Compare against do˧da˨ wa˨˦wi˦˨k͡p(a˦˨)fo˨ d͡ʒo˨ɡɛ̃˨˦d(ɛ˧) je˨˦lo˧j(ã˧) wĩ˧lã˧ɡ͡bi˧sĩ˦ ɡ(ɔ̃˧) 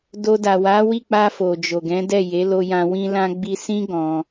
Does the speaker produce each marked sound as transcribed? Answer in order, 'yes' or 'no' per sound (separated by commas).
no, no, yes, yes